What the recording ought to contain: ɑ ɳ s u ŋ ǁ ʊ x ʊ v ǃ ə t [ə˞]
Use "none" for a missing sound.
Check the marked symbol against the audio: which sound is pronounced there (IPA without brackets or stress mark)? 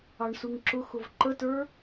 ə˞